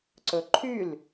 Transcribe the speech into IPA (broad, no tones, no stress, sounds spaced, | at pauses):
ǀ ɵ ǃʰ y l